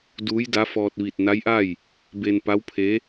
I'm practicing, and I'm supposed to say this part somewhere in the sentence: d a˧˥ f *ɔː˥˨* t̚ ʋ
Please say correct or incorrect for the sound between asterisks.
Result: incorrect